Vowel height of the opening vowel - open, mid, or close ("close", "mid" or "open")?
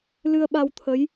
close